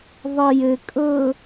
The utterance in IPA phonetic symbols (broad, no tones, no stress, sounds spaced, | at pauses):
ðˤ ʌ j ɘ kʼ ɤ